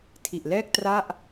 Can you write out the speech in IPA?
tʰi˨˩ʔlɛː˥˩k̚ tra˥˩ʔ

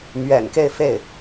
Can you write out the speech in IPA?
mɥɛ̰˨˩nke˥˧ɪ̯fe˥˩ɪ̯

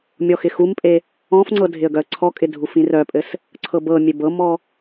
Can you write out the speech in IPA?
mʲɔxɪxumpʼe | ɔ̃fŋ͡ǀɤ dʱɪə̯ɡœə̯ǀʰɔkʼɪ dʱufĩrœpʼɘs | ǀʰɤbɤmʲeb ɤmɔ

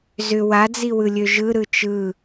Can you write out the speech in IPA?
zʏ wad͡ziwɯlʲø ʒɯɾɯ t͡ʃɯ

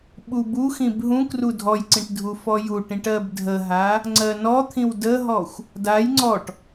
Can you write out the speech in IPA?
ɓubuxĩb ɦũ krudʱɔjǀĩʈ dʱufɔjuʈĩʈ ɜbdʱəɦa | ŋ͡ǀɜnɔt̪ʰĩw dəɦɔxʷ | daj ŋ͡ǀɔʈ

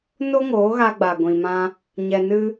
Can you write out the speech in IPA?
no˦ŋoː˨˦ɣa˧ɡ͡ba˨ ɡʷĩ˨ mã˧ | ɲɛ˧nɨ˦

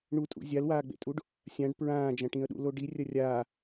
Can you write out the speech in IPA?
ɳutʼṵ zʲalwaːɡ͡bḛtʼuɖ | sʲãɖ pɹãːd͡ʒɐ̃ʈĩə̯ɗṵ loɖi rʲɐrʲaː

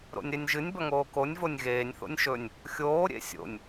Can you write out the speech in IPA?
ɾo̰nʲɾenʲʒɨnʲ bɐŋoːkonʲ vonʲɣeːnʲ θo̰nʲʃɵnʲ | xʲoː ɾʲḛsʲo̰nʲ

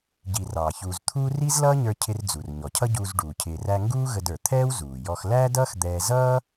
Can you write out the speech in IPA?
ɟi˩ rɑ˩ çuː˩zt̪ʰuː˥ ri˥zlʌː˥ɲə˞˧ cʰɪ˧rd͡zu˩r ɲɔ˩cʰʌ˥ɟuː˧zɖuː˩ cʰɪː˩ræ˧ ŋɡuː˥ɣə˧də˞˩ t̪ʰɛː˥w zuː˩ jɔ˧x læː˥dʌː˥x d̪ɛː˧ zʌː˥

